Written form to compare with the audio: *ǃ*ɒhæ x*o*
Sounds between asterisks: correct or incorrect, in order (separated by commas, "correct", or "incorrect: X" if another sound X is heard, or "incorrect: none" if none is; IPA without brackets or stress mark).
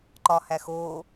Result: correct, correct